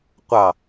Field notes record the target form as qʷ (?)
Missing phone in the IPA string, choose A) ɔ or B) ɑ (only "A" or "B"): B